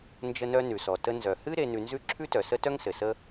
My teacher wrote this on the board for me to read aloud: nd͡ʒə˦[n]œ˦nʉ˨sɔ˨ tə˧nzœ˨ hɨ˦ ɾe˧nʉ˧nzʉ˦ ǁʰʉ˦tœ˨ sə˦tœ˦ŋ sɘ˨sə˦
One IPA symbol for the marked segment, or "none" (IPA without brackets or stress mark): n